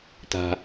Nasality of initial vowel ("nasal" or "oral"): oral